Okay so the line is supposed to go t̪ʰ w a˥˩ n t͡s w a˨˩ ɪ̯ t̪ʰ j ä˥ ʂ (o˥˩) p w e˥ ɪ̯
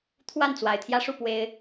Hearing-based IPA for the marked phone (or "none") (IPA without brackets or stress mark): u˥˩